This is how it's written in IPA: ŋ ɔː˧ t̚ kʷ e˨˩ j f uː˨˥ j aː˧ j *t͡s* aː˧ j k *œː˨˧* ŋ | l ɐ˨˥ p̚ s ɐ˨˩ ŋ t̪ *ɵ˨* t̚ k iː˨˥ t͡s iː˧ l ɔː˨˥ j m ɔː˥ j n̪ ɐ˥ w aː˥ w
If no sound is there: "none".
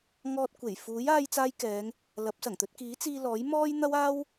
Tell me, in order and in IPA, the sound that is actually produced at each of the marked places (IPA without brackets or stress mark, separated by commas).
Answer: t͡s, ɛː˨˧, ɵ˧